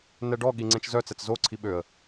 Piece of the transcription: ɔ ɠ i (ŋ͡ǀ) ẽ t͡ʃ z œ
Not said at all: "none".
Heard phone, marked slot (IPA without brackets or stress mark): ŋ͡ǀ